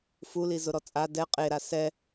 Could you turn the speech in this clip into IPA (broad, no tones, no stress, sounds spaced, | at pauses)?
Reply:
f u l i z ʊ ɾ ɔ t͡sʼ a d ɛ qʼ e ɾ a s ɛ